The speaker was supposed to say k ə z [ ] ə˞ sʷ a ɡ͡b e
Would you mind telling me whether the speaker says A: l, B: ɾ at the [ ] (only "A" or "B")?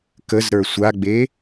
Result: B